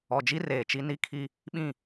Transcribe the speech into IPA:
ɔ˨d͡ʒi˦ reː˨t͡ʃi˦ ni˦kʰi˦ | ɓĩ˦˨

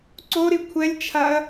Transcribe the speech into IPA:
ǀoɾi kʷʰɛlʲt͡ʃʰaɐ̯

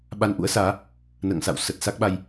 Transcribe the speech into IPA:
ɓa˧nʔṵ˧˥ə̯saː˨˦ | nə̰ː˧˨ŋsa̰˧˨w sə˨˩t̚sa˦˥k̚ɓa˧j

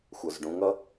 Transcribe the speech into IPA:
xʷə˞zɖũŋʌ

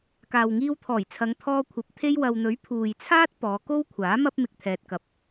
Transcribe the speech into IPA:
kaː˨wŋiː˧wt̪ʰɔː˨˩jt͡sʰɐ˨˧ŋ t̪ʰɔː˧kʷʰɐ˨˥p̚ t̪ʰe˧jwɐ˨wn̪ɵ˨˥ɥ pʰuː˨jt͡sʰaː˥t̚ pɔː˨˧ko˥wkʷʰaː˨˥ mɐ˥p̚ mɪ˨k̚t̪ʰɛː˨t̚kɐ˨p̚

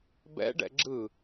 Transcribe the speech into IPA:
bɛ̰ɖɛ̰ ɡ͡ǁɯ

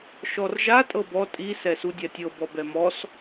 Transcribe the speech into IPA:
ʃɔrʒa tʼɤbɔ tʼi sɛsudʲatʲɤ bɔbɛmɔs

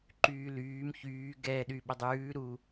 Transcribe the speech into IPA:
ǃyːlyːm çyː ɡɛ ɗyɓədˤʉː ɾu

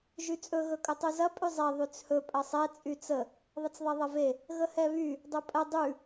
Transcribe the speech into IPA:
ʒyt͡sʼɵ ɣɵkʼɵtˤʉzɐ pʼʉzˤɛ ðˤyt͡shɵ pʼɐsˤɛ t͡sʼyt͡sə | ðˤət͡sðˤɛðˤɐve | ɣəhɛβy | dˤɵpʼə dˤʉ

